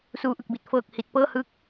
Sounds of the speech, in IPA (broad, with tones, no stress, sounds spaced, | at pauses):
s uː˩˦ ʔ ɯ˨˩ k̚ b i˨˩ t̚ f ɤː˨˩ k̚ h i˨˩ t̚ p ɤː˥˩ h ɯː˦˥ k̚